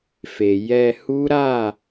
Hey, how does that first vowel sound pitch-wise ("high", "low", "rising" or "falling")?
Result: low